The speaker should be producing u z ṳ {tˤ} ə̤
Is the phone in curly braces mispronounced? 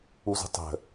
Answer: no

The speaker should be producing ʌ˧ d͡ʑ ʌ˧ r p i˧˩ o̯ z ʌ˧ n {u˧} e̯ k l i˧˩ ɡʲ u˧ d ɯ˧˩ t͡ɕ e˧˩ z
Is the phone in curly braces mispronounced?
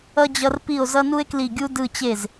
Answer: no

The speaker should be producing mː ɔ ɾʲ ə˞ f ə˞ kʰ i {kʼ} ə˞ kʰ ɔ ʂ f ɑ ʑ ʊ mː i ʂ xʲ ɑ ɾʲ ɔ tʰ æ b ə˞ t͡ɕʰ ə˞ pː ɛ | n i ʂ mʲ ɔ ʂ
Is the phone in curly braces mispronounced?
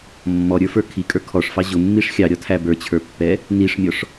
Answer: no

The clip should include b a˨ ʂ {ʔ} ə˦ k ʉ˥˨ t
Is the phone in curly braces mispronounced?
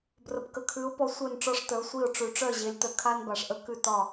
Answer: no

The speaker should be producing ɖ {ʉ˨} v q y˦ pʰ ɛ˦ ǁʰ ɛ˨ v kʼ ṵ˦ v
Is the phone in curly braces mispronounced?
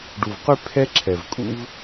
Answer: yes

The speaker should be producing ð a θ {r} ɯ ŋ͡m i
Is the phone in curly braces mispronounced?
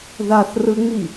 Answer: no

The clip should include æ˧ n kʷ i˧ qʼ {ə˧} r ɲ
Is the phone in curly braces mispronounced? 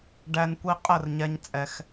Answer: yes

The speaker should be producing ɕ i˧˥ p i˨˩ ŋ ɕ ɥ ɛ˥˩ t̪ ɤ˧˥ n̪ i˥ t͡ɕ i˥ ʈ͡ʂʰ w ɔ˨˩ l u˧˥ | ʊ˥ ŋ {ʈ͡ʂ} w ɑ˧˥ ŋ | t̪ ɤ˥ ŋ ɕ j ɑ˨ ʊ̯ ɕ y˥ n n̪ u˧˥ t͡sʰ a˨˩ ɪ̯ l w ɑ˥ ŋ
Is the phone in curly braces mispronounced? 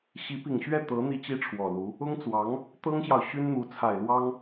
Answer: yes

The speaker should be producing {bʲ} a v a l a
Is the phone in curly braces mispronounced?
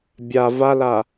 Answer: no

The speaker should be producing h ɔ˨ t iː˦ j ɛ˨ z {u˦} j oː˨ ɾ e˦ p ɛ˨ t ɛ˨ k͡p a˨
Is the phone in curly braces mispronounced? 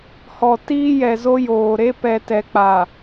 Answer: yes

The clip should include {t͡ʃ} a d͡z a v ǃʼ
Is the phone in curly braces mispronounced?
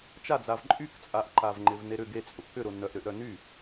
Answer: no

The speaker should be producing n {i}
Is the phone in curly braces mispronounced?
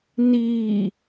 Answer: no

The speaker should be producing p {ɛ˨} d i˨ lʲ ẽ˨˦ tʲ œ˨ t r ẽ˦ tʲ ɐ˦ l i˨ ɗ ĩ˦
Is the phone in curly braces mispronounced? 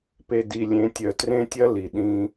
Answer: yes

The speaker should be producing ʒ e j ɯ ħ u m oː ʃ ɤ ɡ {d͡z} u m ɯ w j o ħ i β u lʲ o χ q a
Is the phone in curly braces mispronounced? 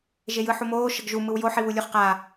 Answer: yes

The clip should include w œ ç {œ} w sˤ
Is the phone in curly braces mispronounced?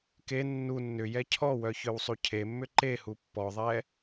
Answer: no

